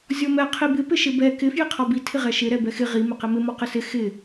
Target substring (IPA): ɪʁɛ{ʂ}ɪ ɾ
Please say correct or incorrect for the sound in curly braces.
incorrect